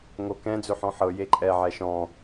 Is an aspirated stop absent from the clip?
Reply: yes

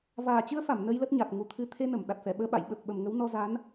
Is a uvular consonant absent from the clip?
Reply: yes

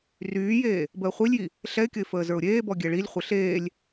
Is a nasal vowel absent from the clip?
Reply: yes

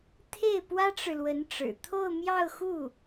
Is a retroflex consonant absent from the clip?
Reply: no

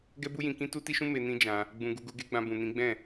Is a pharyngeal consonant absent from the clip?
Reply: yes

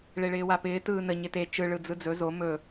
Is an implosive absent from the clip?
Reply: yes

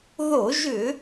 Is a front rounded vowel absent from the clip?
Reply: no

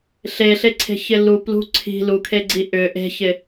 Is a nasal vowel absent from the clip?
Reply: yes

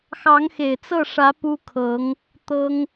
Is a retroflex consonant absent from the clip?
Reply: no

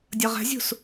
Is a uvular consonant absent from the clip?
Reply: no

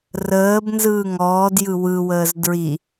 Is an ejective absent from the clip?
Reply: yes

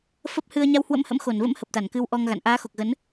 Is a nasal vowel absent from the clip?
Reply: yes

